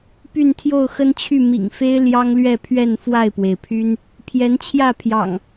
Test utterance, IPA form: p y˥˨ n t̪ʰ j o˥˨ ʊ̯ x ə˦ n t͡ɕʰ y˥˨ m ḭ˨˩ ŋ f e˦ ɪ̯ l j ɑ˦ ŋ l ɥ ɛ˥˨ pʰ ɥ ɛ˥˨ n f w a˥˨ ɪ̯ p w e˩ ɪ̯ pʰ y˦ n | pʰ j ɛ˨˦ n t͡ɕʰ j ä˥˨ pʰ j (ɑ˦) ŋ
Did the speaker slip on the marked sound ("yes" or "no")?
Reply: yes